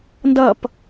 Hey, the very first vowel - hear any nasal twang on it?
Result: no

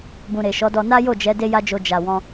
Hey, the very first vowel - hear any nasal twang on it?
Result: yes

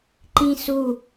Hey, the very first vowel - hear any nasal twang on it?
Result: yes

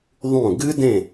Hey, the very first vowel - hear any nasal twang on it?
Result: yes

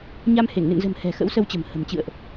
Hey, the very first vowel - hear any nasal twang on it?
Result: no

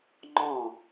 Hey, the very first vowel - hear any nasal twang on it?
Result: yes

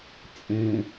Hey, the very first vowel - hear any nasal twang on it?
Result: yes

